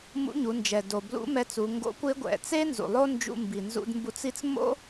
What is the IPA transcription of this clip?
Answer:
m ṵ˧˥ ɲ u˩˧ n d͡ʒ ɛ˩ d o˩ b l ṵ˧˥ m ɛ˧˥ t͡s u˩˧ ŋ ɡ o̰˧˥ kʷ ɪ˧˥ ɡʷ ɛ̰˩ t͡s e˥ n z ṵ˩ lˠ o˥ n d͡ʒ ṵ˧ m b i˩ n z ṵ˧ d m b u˧ t͡s i˥ t͡s m o̰˥

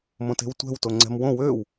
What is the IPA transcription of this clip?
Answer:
m õ t e̤ w tʷ ɛ̤ w t o ŋ͡ǀ ɛ̤ m w õ w ø w

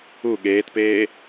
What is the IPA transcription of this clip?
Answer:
u ɠ eː t p eː

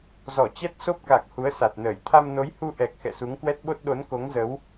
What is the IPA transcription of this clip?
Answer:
z ɔ˧˩ t͡ɕ ɛ˦˥ t̚ s o˦˥ p̚ k a˨˩ k̚ h u˨˦ ə̯ s a˨˩ t̚ n əː˧˩ j t̪ʰ a˧ m n o˨˦ j h u˧ ʔ ɛ˨˩ k̚ x ɛ̰˧˨ s u˨˦ ŋ k w ɛ˦˥ t̚ ɓ o˦˥ t̚ ɗ o˨˦ n k o˨˦ ŋ z ə˨˦ w

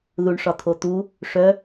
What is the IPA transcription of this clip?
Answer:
ð u ɳ ʂ ɒ t̪ʰ o t̪ u | ʂ œ

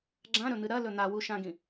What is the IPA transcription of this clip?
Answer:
ɡ͡ǁ ã ɾ ɵ n̪ ɨ ɾ ɐ l ɵ n̪ a w u ʃ ã ɡ ĩ

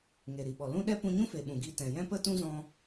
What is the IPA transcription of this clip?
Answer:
ŋ e˨ ɾ i˨ ɓ ɔ˨ l ũ˦ ɗ ɛ˦ p ũ˧ ɲ ũ˦ f e˨ ɓ ũ˨ ɡ i˧ t ɛ̃˨ j ɛ̃˦ p ə˦ t ũ˦ z ɔ̃˧

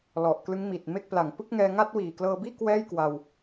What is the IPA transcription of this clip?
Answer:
l ɔ˨˩ ʔ k l ɯ˦˥ ŋ m iː˨˩ t̚ m e˥˩ k̚ p l a˨˩ ŋ p ɯ˥˩ k̚ ŋ ɛː˧ ŋ a˥˩ t̚ w iː˨˩ k l ɤː˧ b iː˥˩ k w ɛː˥˩ j k w a˧ w

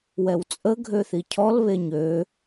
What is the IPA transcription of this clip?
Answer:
w ɛ w t͡sʼ ə ɡʱ ø θ i cʰ ɔ l β e ɲ ø

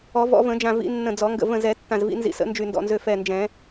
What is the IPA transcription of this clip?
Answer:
ɔ˨˩˦ v ɔ̰˨˩˦ v ə̃˨˩˦ d͡ʒ ã˧˩ v ḭ˨˩˦ nː ə̃˧˩ d͡z ɔ˨˩˦ ŋ ɡ ə̰˧˩ v ə̃˧˩ z ɛ˨˩˦ tː ã˧˩ z v ḭ˨˩˦ n z ḭ˧˩ s ə̰˨˩˦ n d͡ʒ y˧˩ n d ɔ̰˧˩ n z ø˧˩ f ɛ˧˩ n d͡ʒ ɛ̃˨˩˦

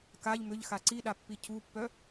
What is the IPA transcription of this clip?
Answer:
k a ʎ m ʏ ʎ x a ǀ i ɗ a pː i cʰ u pː œ

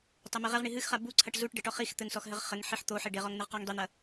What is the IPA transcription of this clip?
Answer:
tˤ ɛ m e ʁ ɛ ʁ ɳ i ɦ ɨ x χ a b u ǀʰ ɐ ʈ z u ʈ ɖ ɘ ʈ ɔ χ i x t̪ ɘ ŋ s ɔ x ɦ ɘ ʁ χ ɘ ŋ ħ i ħ t̪ o ħ e ɖ e ʁ ɔ ŋ n̪ ɘ ʁ q a ŋ dˤ i n̪ ɐ

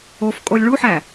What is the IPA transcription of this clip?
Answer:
o f kʼ o lʲ ɭ u ħ æ

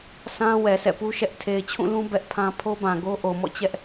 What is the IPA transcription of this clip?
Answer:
sʰ ã˦ w ɛ˨ s ɛ̰˦˨ p u˦ ʃ ɛ˦ ʔ tʰ e˨ ɪ̯ t͡ɕʰ ũ˦˨ l ũ˦ b ɛ˦ ʔ pʰ ã˦ pʰ o˦ b ã˨ ɡ o˦ ʔ o˨ m ɔ̰˦˨ t͡ɕ ɛ˦ ʔ

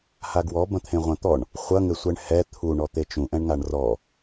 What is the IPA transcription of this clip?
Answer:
h a ɡ w ɔ b ɐ̃ t̪ʰ ẽ ʁʷ ɐ̃ t̪ ɔ ɳ | χʷ ɐ ŋ ɘ sʷ ɛ ɳ h ɛ t̪ʰ u ɳ ɔ t̪ e t͡ʃ ũ ʔ ɛ̃ ɳ ŋ a ɳ r ɔ

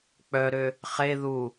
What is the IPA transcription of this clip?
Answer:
k͡p œ ɾ ø | χ e ð u

